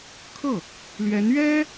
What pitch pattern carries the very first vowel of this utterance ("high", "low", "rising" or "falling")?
falling